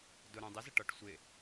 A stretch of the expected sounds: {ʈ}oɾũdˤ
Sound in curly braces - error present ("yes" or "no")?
yes